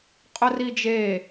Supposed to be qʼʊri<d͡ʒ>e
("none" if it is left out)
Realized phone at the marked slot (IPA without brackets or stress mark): d͡ʒ